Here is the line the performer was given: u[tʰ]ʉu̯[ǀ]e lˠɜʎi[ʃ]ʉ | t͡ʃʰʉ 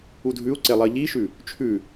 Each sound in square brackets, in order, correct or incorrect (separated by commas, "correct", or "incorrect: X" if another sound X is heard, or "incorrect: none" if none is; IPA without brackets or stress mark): incorrect: dʱ, correct, correct